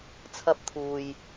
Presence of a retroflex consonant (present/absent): absent